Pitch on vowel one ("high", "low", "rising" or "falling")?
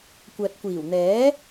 low